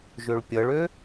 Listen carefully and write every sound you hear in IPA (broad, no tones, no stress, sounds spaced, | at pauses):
ʒ ø ɭ pʲ ʌ ɭ ø